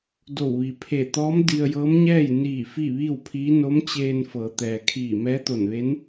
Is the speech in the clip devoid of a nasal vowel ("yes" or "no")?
yes